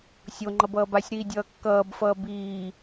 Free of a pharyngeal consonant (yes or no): yes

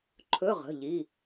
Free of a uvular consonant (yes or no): no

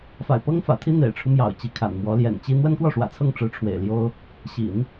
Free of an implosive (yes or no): yes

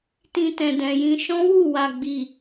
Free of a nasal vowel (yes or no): no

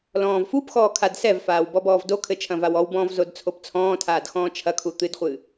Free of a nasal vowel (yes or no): no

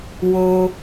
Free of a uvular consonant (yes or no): yes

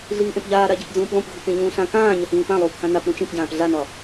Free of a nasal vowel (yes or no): no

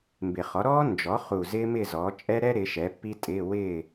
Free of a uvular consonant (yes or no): no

